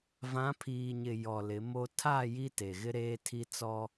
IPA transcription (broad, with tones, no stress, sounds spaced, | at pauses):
v ã˨˦ pʰ iː˨ ɲ ɪ˨ j ɔ˨ l ɪ˨˦ m o˦ tʰ a˦˨ j i˦ t e˨ ɣ ɪ˦ ɾ eː˦ tʰ i˦ t͡s ɔ˦